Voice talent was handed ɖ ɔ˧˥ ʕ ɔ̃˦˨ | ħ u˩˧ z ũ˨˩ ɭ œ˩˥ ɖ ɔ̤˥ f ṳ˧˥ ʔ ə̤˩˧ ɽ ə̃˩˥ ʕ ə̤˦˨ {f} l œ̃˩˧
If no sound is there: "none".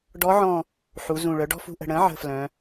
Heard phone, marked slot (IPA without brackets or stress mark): f